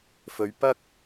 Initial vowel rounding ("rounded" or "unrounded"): rounded